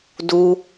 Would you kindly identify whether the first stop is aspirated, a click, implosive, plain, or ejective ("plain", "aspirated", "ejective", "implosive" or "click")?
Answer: plain